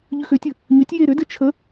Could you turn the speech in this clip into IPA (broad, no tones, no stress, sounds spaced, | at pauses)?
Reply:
ʎ ʏ x ʏ tʲ ɘ | ɲ ʏ tʲ j e ɾ ʏ d ɘ t͡ʃʰ ə